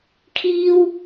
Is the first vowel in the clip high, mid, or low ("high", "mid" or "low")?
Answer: high